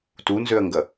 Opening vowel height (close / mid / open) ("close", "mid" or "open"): close